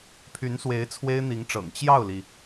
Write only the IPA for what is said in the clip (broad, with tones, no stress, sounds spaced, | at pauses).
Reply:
pʰ y˧˥ n s w e˧˥ ɪ̯ t͡sʰ w e˥ ɪ̯ n̪ i˧˥ ŋ ʈ͡ʂ ɤ̰˨˩ ŋ t͡ɕ j ɑ˥˩ ʊ̯ l i˩